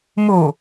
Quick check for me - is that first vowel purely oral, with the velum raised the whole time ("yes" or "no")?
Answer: yes